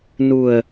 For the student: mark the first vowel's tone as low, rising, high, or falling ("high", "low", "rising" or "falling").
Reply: low